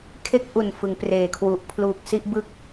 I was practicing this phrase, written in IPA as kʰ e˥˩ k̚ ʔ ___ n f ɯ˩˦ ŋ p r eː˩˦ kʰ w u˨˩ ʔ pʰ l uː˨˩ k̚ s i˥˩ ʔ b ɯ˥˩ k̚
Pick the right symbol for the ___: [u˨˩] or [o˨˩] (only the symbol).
u˨˩